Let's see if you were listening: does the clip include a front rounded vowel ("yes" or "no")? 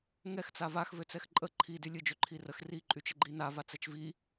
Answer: yes